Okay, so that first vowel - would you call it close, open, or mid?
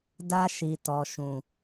open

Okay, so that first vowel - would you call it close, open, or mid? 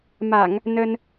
open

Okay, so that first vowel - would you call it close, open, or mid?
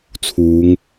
close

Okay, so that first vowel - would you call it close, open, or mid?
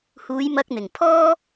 close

